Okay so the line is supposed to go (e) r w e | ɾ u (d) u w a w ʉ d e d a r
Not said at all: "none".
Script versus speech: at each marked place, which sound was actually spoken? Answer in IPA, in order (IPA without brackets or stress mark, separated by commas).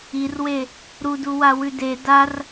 i, d